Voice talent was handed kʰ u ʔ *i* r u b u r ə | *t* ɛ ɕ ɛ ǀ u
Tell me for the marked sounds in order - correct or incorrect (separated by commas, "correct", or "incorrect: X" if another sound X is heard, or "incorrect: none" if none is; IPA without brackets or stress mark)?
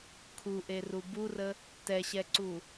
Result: incorrect: e, correct